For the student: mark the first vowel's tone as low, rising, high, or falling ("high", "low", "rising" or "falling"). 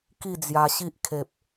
falling